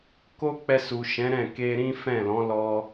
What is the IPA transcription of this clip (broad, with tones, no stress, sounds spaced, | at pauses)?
k o˦ k͡p ɛ˧ s u˨ ʃ ɛ̃˨˦ ɾ ɛ̃˦˨ k e˧ ɾ ĩ˦ f ɛ̃˦˨ l ɔ̃˨˦ l ɔ˦